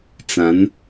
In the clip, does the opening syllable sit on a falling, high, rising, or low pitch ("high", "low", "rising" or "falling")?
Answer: rising